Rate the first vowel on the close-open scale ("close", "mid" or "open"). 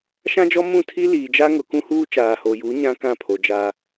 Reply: open